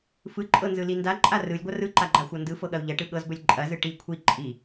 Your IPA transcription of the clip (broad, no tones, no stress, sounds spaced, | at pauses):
f ɯ ǃʼ ɤ n z ɯ l i n d a ǃʼ a r ɯ lʲ ɡʷ ɐ r ɯ ǃ a ɡ͡ǃ a xʷ ɤ n d ɯ f ɤ ɠ ɐ u̯ ʎ ɐ ʈ ɯ ɠ ɤ z b ɵ lʲ ǃʼ ɐ z ɯ ʈ i kʷʰ i ǃʼ i